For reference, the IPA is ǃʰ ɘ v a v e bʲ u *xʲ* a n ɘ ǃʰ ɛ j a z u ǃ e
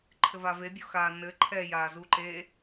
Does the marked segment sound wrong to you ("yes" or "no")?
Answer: yes